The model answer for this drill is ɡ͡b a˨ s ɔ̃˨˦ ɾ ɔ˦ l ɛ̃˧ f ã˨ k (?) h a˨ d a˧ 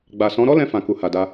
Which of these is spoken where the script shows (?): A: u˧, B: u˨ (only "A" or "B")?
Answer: B